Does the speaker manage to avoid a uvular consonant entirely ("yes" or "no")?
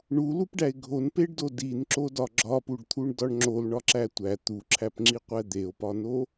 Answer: no